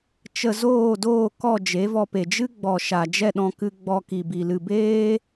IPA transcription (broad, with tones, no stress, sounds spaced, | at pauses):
t͡ʃ ə˧ z oː˦˨ d oː˦˨ k ɔ˦˨ d͡ʒ e˨˦ v ɔ˧ p e˨ d͡ʒ ɨ˦ ɡ͡b ɔ˨ ʃ a˨ d͡ʒ ɛ˦˨ ɗ ɔ̃˧ k ɨ˧ ɡ͡b ɔ˧ k i˨ b i˨ l ɨ˨ b eː˦